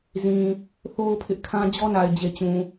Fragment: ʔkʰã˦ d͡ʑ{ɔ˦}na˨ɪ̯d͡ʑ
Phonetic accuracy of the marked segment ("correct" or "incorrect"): correct